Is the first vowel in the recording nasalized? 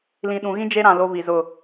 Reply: yes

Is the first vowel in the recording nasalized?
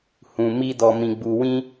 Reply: yes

